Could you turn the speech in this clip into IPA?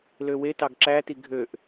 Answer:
l ø w e t ɑ ɡ ǁ æ t i ɡʱ ø ʔ

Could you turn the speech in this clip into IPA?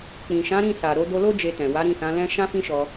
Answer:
k͡p ĩ˨ ʃ ã˨˦ ɾ ĩ˦˨ s a˨ ɾ o˧ d o˧ l o˦ d͡ʒ e˧ t ɛ̃˨ w a˨˦ ɾ ĩ˦˨ s ã˨˦ l ɛ̃˦ ʃ ã˦ f ĩ˦ ʃ ɔ˧

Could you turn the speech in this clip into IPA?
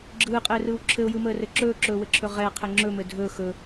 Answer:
ɡ͡ǁ ɯː qʼ ɘː r ɯː w ǁʰ ɘ ʊ̯ j ɯ m əː r ɘ ǁ ɵː ǁ ɵː w ɘ ǁʰ ɵ ʁ ɛ qʰ ɘ ŋ͡ǁ ɵ m ɘ dʱ ɵ x ɵ

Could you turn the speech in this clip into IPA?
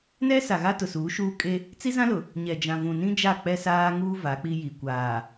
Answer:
n ɛ˦ s a˨ ɣ a˦ t ʊ˨ s uː˨˦ ʃ uː˦ kʼ e˦ | t͡s i˦ z ã˦ l ʊ˨ | ɲ ɛ˨ d͡ʒ ã˨ v ũ˨ n ĩ˦ d͡ʒ a˦˨ k͡p ɛ˦ s aː˦ ŋ uː˦ v a˨˦ k͡p i˦ j i˨ kʷ aː˨

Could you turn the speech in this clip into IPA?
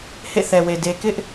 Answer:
h ḛ˦˨ θ ɛ˨ w e˨ d e˨ k ɪ˦ ʔ

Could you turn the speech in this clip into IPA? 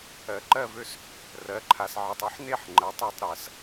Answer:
ɜ˩˥ ǃ ɜ˥˩ v ø˥˩ s | r ɜ˩˥ ǃʰ a˨ s ʕ e˨ tˤ ø˥ ħ n e˥˩ ħ ŋ͡ǃ ɜ˩˥ tˤ e˥˧ tˤ ɾ ɜ˩˥ s

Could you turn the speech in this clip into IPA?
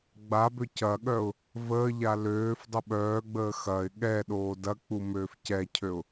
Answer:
ɡ͡b a b ø c ɐ ɠ œ ʊ̯ | v əː ʎ a l øː f dˤ ʊ ɓ œː ɡ͡b əː x ɐ ɪ̯ ɠ ɛ ɗ oː d ɐ k͡p u m øː f c ɛ cʰ ø ʊ̯

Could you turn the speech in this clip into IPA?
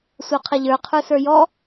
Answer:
sʷ a qʰ ɐ ʎ ə˞ qʰ ə˞ s ə˞ j ɔ

